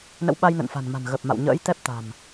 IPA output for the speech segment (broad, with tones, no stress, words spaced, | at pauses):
nə̰˧˥w ɓa˧jnə̰˧˨nfa̤˨˩nma̤˨˩n ɣə˨˩p̚ ma̰˧˨wɲə̰ː˧˥jt̪ɛ˦˥p̚t̪a̤˨˩m